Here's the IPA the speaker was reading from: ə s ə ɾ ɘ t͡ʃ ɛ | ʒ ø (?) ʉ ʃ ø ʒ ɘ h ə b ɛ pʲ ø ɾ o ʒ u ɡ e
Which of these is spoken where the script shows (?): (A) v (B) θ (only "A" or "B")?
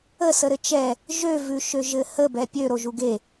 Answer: A